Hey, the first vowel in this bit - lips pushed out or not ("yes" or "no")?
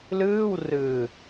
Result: no